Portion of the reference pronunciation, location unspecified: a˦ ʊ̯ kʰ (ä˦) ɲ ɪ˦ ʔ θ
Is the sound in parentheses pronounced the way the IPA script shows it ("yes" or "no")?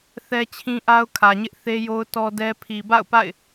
no